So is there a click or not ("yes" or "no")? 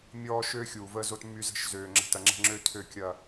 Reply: yes